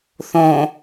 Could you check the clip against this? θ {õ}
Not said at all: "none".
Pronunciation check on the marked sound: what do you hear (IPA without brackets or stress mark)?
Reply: õ